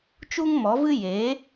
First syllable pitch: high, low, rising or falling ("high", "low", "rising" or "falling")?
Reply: high